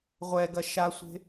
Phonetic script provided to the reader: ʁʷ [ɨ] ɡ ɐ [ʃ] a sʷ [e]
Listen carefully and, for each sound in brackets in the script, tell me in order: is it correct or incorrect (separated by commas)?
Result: incorrect, correct, incorrect